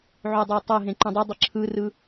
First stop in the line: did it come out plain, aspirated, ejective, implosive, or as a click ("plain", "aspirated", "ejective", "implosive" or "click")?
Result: plain